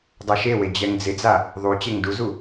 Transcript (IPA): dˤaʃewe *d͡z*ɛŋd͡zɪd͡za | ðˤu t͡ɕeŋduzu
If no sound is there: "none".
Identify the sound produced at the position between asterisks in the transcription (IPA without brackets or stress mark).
d͡ʑ